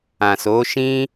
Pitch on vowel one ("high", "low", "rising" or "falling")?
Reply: low